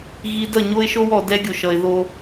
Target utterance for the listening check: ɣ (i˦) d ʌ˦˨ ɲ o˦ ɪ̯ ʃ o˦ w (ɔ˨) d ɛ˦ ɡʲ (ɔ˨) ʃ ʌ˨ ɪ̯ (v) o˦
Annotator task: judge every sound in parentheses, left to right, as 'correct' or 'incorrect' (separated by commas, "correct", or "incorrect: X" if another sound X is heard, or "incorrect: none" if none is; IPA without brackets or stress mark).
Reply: correct, correct, incorrect: o˨, incorrect: ð